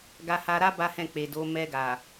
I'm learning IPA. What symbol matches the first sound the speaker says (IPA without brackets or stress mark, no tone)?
ɡ